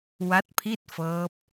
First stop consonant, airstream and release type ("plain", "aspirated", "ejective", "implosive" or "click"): plain